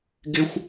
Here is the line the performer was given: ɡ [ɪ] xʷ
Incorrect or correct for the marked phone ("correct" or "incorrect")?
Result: correct